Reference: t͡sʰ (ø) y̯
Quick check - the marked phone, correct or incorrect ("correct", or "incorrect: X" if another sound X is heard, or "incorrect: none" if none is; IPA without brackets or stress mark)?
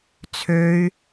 correct